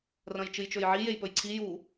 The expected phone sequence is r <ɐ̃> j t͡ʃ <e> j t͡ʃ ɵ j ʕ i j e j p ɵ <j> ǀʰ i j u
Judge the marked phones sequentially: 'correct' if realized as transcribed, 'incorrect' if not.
correct, incorrect: ɨ, correct

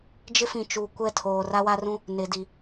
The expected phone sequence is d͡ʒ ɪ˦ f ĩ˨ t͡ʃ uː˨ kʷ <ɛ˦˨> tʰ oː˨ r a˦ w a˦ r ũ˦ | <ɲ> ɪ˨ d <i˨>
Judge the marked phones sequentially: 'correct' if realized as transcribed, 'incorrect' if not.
correct, incorrect: n, correct

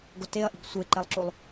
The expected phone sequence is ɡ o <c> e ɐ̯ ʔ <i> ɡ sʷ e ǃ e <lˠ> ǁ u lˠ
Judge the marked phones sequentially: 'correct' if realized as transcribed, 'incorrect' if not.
incorrect: t, correct, correct

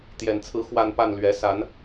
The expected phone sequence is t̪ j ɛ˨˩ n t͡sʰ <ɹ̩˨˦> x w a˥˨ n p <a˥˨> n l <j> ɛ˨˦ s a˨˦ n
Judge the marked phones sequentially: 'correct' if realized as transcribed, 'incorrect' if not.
correct, correct, incorrect: ɥ

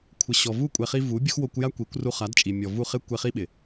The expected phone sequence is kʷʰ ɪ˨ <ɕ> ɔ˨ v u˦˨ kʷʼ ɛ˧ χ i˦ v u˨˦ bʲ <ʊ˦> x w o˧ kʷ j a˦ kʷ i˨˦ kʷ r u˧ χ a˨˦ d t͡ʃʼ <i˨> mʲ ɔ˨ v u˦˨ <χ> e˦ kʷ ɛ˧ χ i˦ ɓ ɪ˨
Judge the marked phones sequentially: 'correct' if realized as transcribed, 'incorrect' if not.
correct, correct, correct, correct

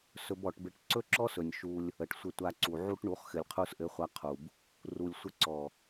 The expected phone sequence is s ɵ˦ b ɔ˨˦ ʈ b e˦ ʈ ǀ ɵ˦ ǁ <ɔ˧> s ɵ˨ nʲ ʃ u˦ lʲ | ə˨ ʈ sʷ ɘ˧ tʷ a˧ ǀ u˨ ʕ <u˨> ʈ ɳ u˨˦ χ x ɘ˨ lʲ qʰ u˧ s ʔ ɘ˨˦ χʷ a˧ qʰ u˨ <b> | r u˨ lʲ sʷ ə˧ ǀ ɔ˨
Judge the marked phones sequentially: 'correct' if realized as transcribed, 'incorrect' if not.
incorrect: ɔ˦, incorrect: u˦, correct

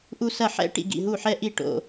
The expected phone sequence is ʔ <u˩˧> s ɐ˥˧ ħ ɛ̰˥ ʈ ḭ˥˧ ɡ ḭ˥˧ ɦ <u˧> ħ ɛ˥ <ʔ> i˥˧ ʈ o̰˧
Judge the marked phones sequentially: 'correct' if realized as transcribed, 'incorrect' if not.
incorrect: u˥, incorrect: u˥˧, correct

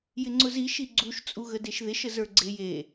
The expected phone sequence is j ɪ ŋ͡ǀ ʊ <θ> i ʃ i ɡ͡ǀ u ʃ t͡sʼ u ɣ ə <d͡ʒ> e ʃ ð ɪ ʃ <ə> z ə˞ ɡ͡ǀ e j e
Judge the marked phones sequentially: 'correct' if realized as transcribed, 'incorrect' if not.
incorrect: z, incorrect: d, correct

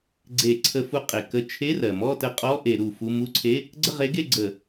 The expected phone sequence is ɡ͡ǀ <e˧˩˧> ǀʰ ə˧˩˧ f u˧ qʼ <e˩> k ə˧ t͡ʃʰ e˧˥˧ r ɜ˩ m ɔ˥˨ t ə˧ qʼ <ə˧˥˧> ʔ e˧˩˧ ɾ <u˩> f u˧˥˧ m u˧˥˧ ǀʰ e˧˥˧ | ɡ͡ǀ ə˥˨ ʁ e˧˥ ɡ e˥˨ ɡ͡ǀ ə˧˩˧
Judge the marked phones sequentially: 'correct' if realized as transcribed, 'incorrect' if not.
correct, correct, incorrect: ɔ˧˥˧, correct

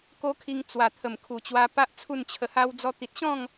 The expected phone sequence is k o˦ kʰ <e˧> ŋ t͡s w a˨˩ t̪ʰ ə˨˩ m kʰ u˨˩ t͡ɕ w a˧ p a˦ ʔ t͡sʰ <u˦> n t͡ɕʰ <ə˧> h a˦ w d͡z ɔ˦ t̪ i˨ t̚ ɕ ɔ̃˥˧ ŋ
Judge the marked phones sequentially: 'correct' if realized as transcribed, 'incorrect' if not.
incorrect: i˧, incorrect: u˥˧, correct

